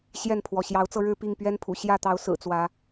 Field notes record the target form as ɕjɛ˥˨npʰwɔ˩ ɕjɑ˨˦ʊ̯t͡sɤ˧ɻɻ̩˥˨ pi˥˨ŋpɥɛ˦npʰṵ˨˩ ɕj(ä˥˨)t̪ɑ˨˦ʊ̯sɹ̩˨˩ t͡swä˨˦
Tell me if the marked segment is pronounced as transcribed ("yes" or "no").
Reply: yes